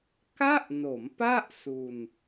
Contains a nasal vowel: no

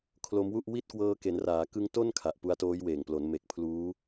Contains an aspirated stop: yes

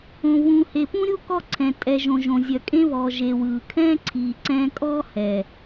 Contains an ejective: yes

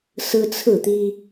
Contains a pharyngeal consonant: no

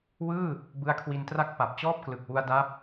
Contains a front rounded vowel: no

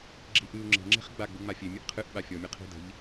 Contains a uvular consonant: yes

